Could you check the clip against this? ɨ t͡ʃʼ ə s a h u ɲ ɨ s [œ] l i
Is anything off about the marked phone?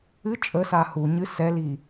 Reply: yes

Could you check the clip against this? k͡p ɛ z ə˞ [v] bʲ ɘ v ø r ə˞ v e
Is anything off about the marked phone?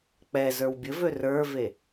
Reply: yes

